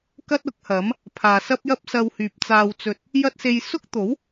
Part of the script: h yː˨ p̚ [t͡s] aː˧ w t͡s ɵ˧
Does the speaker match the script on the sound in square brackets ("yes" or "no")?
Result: yes